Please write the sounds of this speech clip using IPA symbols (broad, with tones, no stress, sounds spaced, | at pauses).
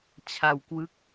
t͡ɕʰ a˧ w k w ɯ˦˥ k̚